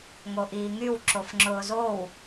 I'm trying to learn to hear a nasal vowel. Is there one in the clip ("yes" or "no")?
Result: no